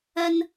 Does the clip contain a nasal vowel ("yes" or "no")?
no